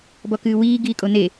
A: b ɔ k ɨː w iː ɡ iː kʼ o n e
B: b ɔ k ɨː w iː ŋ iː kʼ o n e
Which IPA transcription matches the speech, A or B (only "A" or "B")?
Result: A